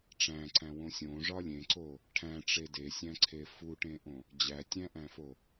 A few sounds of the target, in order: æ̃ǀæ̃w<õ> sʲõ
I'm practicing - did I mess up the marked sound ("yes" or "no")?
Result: no